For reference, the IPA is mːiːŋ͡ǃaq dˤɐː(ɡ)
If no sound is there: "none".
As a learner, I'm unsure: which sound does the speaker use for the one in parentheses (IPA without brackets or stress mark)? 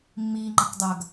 ɡ